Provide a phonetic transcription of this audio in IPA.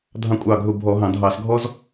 dʱ ɑ̃˦ kʷʼ ɑ˦˨ ɡʱ ʊ˦˨ bʱ ɔ˧˩˧ ɦ ɑ̃˧˩˧ dʱ ɑ˧˩˧ s ɡʱ ɔ˦ z

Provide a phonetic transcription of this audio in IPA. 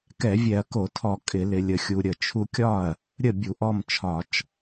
k ɛ˧˩˧ vʲ ɛ˧˩˧ ɐ̯ k o˧˩˧ tʰ ɔ˧˩˧ kʼ ɪ˧˩˧ l ɪ˧ lʲ ə˧ xʲ u˧ ɾʲ ə˥˩ t͡ʃʰ u˧ kʲ ɒ˥˩ ɐ̯ | ɾʲ ə˥˩ bʲ u˧˩˧ ʔ ɔ˥˩ m t͡ʃʰ ɒ˧˩˧ t͡ʃ

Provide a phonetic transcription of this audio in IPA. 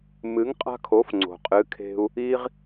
m ɨ˩˥ ŋ qʼ a̤˧ kʰ o˩˥ f ŋ͡ǀ o̤˩ qʼ ɨ˩˥ kʰ e̤˧ u̯ | i˧ ʁ

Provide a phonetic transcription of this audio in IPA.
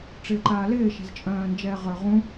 ʈ͡ʂ ɪː ǃ aː l ɪː ʃ ɛ̤ z t͡ʃʼ œ̃ː n d͡ʒ ɛː ʁ ə˞ ʁ ũ

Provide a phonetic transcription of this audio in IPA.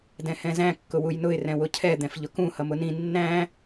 d ɛ̃ h ɛ̃ z æ̃ kː ʊ w u j n ʊ ɪ̯ r ɛ̃ w ʊ cʰ ɛ d̪ ɛ̃ f ʎ ʊ k ũ h ʌ m ʊ n ĩ nː æ̃

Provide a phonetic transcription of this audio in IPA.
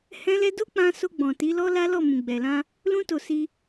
h ɛ̃˦ l ɛ˦ d o˦ k͡p ã˧ s o˧ ɡ͡b ɔ̃˨ t i˨˦ l ɔ˦ l a˦ l ɔ˦˨ m ũ˨ ɡ͡b ɛ˨ l ã˧ | l ũ˦ t o˧ s i˧

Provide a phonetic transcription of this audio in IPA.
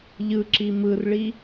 ʎ ɯ ǁ i m ɯ r ɭ i

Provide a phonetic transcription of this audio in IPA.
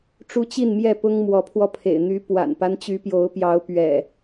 ʈ͡ʂ u˦ t͡ɕ i˥˨ n m j ɛ˥˨ p ʊ˦ ŋ m w ɔ˨˦ pʰ w ɔ˧ pʰ ḛ˨˩ ɪ̯ n̪ y˨˦ p w a̰˨˩ n p a˦ n t͡ɕ y˨˦ p j o˨˦ ʊ̯ p j ɑ˨˦ ʊ̯ p ɥ ɛ̰˨˩

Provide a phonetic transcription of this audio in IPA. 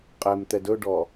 qʼ ɛ m t̪ ɛ d ɵ ɖ ɔ

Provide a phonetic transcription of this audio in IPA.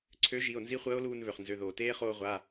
ǀʰ ø˨˥ ʒ i˩˧˩ o̯ n z i˦˥ χʷ əː˦˥ o̯ l uː˧ n β ø˩ χ n z ø˩˧˩ ð oː˩ t eː˦˥ χ oː˧ ʁʷ a˩˧˩

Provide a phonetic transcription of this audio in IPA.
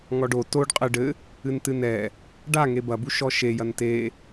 ŋ ɔ ɖ o t o ɖ qʼ ɘ ɖ ɘ | ɨ n t ɨ n ɛ | ɖ a ŋ e b ɐ b u ʃ ɔ ʃ e j ɐ n t e

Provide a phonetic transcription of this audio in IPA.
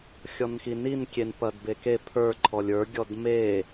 xʲ ɔ n x i n i n kʲ e n p ɐ d b e k e pʰ ə˞ ǃʰ ɔ lʲ ə˞ ɡʲ ɔ d m e

